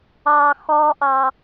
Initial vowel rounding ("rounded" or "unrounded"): unrounded